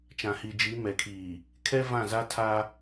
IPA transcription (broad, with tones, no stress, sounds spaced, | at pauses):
t͡ʃ ã˨ h i˨ d͡ʒ iː˨˦ m ɛ˨ kʰ iː˨ | kʰ ɛ˦ v ã˦˨ z a˦ tʰ a˦